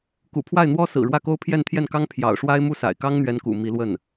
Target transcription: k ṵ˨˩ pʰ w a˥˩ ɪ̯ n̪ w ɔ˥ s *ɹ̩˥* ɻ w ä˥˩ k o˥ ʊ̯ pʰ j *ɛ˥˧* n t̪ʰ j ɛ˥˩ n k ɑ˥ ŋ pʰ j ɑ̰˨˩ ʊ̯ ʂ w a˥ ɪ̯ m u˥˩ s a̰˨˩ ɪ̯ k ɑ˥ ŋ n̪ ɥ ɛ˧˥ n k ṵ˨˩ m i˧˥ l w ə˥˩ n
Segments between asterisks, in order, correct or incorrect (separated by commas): incorrect, correct